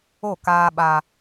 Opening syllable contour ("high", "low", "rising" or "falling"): falling